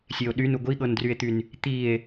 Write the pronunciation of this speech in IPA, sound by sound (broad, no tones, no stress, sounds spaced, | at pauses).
sʲ e o̯ ɗ y n u ɡʷ i ɠ ɤ n d r y e̯ t̪ y n | t̪ i e̯